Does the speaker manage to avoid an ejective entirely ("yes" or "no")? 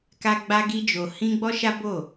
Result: yes